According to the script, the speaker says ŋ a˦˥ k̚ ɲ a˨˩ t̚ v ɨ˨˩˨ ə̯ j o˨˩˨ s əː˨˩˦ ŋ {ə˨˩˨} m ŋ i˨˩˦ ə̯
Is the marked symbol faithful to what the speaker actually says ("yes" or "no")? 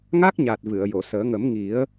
no